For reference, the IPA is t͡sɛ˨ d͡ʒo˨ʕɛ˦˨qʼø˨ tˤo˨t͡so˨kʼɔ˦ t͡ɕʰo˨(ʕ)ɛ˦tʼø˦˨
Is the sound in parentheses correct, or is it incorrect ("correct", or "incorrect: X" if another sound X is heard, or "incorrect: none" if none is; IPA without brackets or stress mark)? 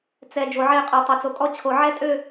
correct